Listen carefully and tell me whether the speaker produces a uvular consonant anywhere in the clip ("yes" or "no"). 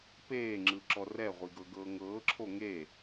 yes